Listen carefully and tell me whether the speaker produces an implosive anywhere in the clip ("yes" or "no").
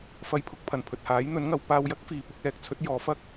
no